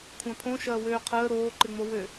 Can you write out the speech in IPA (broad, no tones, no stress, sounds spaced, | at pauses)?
kʷʰ ã pʰ õ ʃ ɐː w øː qʰ əː ɾ oː ǃ ɪ ŋ͡m o w ø